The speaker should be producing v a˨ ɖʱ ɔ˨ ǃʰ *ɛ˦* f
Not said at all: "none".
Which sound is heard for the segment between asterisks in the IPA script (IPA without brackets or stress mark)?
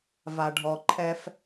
ɛ˦